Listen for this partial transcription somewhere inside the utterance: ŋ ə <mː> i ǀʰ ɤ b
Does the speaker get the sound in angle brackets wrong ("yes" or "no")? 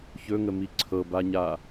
yes